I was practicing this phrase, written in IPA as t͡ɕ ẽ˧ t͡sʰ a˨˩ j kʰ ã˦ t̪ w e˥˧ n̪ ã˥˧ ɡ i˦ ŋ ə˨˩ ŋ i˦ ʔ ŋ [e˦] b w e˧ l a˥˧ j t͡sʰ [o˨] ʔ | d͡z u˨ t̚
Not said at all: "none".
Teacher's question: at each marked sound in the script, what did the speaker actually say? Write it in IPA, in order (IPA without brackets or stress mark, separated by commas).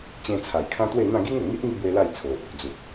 i˦, o˨